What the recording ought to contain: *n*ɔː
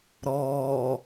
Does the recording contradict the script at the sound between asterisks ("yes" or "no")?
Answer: yes